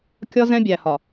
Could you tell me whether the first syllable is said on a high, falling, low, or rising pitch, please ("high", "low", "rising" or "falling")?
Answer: high